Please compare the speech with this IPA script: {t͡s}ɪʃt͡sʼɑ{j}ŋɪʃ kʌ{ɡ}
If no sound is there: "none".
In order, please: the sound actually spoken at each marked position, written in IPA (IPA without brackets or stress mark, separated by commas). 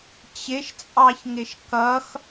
t͡ɕ, ç, x